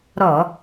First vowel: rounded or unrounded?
rounded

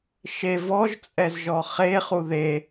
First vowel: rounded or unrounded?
unrounded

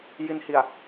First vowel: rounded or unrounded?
unrounded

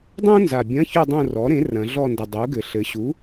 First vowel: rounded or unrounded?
rounded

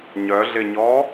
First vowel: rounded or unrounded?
rounded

